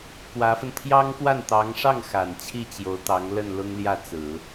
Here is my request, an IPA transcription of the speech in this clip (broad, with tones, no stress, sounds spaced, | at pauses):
k w ä˧˥ f ə˧ n t̪ʰ j ɑ˥ ŋ k w a˥˩ n t̪ ɑ˧˥ ŋ ʂ ɑ˥˩ ŋ x a˨˩ n t͡ɕʰ i˥˩ t͡ɕ j o˧˥ ʊ̯ t̪ ɑ˧˥ ŋ l ə˥˩ n l ʊ˥ ŋ l j ä˥˩ t͡s ɹ̩˨˩˦